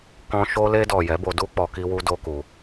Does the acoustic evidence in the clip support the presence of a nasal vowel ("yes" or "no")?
yes